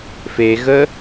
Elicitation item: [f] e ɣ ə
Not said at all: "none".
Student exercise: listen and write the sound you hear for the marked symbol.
f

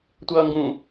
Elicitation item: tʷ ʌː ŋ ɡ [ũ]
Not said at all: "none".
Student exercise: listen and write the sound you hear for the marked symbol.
ũ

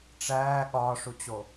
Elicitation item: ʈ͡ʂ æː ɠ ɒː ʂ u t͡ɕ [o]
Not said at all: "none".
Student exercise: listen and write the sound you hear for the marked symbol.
o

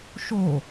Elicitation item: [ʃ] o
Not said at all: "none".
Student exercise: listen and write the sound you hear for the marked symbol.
ʃ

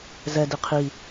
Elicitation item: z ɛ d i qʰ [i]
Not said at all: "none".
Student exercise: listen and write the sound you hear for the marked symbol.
i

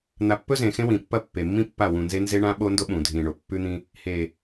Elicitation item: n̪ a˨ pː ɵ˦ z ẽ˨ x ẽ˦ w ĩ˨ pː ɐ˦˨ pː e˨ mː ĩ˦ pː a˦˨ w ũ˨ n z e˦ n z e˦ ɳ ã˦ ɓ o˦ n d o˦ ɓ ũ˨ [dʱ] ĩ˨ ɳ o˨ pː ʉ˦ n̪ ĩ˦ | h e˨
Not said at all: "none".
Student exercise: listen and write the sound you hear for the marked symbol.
dʱ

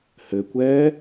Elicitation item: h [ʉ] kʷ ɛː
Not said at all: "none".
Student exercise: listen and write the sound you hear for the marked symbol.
ɘ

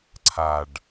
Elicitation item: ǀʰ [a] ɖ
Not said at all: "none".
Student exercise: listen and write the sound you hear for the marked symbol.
a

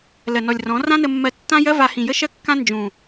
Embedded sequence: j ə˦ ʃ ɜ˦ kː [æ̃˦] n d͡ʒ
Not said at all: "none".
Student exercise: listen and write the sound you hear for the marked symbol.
ã˦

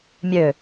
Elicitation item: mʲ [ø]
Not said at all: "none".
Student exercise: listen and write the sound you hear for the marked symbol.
ø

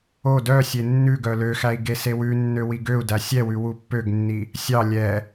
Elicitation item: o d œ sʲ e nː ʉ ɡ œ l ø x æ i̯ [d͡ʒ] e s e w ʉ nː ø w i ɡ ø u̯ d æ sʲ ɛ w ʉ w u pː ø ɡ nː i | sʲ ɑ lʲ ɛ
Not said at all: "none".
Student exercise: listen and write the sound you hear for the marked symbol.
ɡ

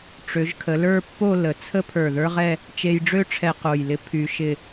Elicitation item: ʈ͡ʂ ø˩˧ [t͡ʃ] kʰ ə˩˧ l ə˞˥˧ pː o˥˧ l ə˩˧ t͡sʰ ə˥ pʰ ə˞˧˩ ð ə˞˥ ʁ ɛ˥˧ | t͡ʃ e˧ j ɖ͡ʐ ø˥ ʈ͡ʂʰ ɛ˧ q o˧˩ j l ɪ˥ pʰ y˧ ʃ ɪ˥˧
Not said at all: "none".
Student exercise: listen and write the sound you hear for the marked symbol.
ʒ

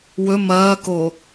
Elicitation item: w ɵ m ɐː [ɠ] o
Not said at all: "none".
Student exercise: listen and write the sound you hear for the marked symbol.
k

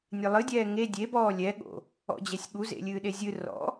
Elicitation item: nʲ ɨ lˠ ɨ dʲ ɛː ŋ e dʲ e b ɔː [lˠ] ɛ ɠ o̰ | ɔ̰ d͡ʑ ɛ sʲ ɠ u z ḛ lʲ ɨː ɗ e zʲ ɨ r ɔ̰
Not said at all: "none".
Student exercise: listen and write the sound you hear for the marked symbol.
lʲ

